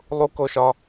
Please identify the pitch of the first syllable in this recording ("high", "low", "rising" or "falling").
high